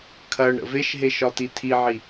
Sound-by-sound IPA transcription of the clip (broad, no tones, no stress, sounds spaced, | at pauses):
kʰ ɐ ɳ ɾ ə̰ v e ʃ ɦ e ʃ ɒ t i tʰ i ʕ i